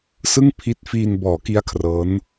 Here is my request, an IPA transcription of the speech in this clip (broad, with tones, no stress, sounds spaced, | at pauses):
s ɯ˥˩ ŋ pʰ i˦˥ t̚ f iː˧ n b ɔː˩˦ k i˦˥ a̯ kʰ r ɤː˦˥ n